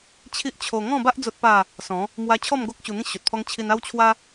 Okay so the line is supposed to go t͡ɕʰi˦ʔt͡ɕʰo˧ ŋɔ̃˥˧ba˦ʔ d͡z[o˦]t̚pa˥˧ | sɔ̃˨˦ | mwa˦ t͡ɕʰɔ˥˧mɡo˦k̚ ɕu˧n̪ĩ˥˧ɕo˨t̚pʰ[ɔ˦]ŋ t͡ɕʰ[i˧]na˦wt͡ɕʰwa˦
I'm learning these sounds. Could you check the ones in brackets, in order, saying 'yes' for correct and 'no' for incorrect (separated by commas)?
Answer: yes, yes, yes